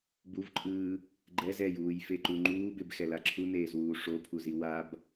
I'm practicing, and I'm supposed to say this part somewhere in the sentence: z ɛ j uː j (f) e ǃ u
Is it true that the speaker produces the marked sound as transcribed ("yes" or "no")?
yes